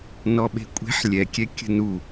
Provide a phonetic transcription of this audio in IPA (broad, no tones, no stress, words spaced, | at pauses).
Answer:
nɔɓe̤kʷʼe̤ħ lʲɛkʲɛ kʲə̤nu